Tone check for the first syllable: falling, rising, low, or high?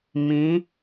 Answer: rising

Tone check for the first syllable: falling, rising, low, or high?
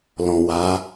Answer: low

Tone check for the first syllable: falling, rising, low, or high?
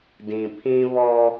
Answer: low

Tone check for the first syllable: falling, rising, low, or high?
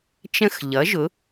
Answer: falling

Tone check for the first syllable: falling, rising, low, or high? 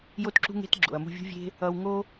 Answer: high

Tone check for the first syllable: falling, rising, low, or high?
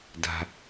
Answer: low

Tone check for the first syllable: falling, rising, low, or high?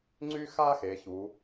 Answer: high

